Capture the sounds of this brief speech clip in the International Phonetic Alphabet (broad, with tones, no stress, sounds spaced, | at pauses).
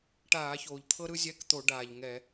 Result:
ʈ aː˧˩˧ ç oː˩ ʎ t̪ʰ ɤ˥ ɾ ɯ˥ zʲ ɛ˧˥˧ k t̪ o˧˩˧ ɖ aː˩ ʎ ŋ ɛ˧˩˧